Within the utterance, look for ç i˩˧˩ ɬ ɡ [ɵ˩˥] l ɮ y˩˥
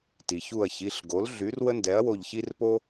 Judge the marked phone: incorrect: o˩˥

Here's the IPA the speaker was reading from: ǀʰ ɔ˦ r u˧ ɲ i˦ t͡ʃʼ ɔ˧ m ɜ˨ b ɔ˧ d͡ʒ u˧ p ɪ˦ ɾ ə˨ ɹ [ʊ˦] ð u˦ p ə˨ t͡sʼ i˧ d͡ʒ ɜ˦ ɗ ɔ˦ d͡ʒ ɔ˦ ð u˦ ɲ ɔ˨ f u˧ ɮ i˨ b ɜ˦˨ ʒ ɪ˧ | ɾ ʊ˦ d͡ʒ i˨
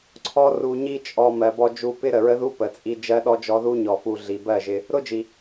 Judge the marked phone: incorrect: ə˦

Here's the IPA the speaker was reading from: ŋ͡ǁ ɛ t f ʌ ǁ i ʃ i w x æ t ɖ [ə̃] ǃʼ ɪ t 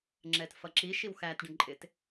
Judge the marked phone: correct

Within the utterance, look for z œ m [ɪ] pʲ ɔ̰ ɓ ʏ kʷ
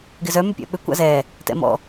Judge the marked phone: incorrect: ʏ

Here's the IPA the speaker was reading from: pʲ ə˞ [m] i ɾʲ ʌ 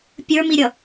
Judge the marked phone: correct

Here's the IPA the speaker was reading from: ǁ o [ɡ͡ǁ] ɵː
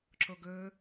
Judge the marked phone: incorrect: ɡ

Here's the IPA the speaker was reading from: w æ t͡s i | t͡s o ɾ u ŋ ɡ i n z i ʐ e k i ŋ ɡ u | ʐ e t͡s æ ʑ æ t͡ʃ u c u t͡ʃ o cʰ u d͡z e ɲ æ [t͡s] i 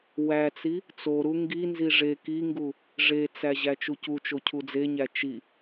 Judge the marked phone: incorrect: t͡ʃ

